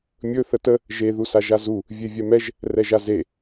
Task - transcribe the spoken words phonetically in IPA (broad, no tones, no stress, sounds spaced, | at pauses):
mʲ ɵ θ ə t ə | ʒ e ð u s a ʒ a z u | vʲ e vʲ ɛ m ɛ ʒ | r ɛ ʒ a z e